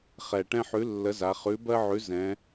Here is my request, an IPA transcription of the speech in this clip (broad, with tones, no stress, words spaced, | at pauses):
χɛ˨˩ ʈɛ̃˦ħʉ˨˥ lːə˨˥za˩˧χʉ˨˥ bɜ˦ʕʉ˨˥ zɛ̃˩˧